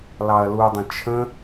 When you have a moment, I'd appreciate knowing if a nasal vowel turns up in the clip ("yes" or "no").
yes